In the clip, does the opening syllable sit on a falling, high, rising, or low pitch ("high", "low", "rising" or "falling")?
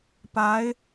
rising